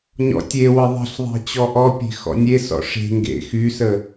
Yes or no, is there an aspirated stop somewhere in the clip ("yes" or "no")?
no